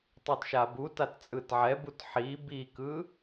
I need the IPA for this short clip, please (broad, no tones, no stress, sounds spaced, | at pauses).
tˤ o t ʃ a b u t a t t͡sʼ ɯ t ʕ ɛ b u t ħ i b i k ɯ